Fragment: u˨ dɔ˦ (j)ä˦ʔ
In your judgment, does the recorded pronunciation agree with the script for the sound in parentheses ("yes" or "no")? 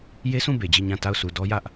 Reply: yes